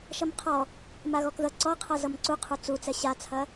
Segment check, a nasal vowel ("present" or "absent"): absent